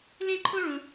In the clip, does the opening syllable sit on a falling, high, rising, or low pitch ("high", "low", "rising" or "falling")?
high